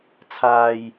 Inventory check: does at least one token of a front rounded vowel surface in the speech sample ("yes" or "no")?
no